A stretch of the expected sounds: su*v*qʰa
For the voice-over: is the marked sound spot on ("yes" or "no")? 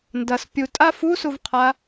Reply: yes